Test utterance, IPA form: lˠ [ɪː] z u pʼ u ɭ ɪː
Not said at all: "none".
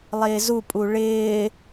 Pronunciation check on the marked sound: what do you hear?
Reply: ɪː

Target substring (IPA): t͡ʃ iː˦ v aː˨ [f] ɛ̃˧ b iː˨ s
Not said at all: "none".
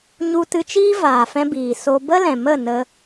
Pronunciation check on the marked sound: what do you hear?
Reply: f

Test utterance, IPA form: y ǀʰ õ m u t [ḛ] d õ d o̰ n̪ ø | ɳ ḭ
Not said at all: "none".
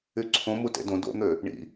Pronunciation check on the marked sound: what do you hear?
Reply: ḛ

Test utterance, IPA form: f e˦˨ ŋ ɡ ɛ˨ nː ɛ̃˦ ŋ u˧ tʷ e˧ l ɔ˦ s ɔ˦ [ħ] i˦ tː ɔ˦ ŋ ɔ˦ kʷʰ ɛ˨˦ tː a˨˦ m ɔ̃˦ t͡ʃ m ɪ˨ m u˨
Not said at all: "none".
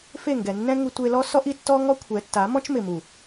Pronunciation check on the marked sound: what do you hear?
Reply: ʔ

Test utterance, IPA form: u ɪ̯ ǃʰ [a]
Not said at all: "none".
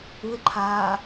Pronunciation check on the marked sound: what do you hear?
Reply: aː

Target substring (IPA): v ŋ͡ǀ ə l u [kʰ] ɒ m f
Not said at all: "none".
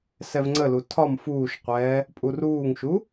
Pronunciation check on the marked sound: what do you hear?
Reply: tʰ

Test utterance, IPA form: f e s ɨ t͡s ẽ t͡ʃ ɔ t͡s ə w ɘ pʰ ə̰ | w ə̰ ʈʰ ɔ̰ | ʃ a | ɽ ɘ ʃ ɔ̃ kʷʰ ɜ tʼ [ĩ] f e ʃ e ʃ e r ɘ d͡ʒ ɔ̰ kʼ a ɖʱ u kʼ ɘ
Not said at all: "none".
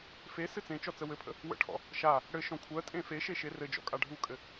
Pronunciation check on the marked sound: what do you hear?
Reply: ẽ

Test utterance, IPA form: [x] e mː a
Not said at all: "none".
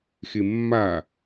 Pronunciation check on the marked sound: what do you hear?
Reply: x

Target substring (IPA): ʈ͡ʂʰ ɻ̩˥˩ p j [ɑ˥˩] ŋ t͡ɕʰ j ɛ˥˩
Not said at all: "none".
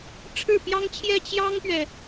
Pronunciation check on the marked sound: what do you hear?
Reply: ɑ˥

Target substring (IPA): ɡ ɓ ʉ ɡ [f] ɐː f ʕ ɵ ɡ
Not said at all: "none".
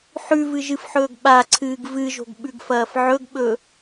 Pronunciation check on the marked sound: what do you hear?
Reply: f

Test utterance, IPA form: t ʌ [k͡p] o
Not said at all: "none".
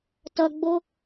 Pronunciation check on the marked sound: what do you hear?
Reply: ɡ͡b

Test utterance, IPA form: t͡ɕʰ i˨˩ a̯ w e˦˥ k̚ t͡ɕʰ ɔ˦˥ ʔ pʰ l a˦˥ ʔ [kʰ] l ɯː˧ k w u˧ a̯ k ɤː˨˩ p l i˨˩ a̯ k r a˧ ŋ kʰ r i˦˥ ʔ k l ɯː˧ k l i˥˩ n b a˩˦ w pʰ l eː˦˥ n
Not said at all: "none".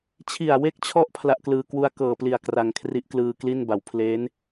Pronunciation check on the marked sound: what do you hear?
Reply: k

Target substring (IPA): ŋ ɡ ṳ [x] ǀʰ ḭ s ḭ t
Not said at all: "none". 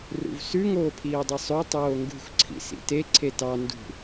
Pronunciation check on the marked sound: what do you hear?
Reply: x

